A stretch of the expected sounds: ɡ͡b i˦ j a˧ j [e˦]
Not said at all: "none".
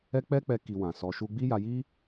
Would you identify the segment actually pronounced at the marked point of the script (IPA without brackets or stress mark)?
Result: i˦